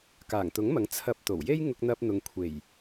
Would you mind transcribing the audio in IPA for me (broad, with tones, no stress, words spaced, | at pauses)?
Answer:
kaː˨˩ŋt̪ʊ˨˥ŋmɐ˨˥ŋ t͡sʰɐ˧p̚t̪o˨˩w je˥jŋʊ˧k̚n̪ɐ˧p̚n̪ʊ˨ŋ kʷʰe˨˩j